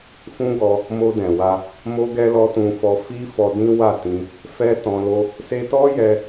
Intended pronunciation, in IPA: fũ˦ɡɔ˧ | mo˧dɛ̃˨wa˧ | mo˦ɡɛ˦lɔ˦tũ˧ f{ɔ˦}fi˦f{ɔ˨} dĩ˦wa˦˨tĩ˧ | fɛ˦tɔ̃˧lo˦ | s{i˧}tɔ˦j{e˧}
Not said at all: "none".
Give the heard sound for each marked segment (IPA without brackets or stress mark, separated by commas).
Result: ɔ˧, ɔ˧, e˧, ɛ˧